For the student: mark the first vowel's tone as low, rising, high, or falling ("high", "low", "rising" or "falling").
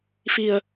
low